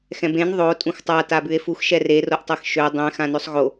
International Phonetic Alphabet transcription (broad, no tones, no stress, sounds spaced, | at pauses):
x ɛ̃ b ẽ n ðˤ o tʼ ũ x tˤ a t a b ʉ e̯ f u x ʃ ɛ r e r o ʔ tˤ ɜ x ʃ ø dˤ ɛ̃ x ã n ø sˤ ɣ o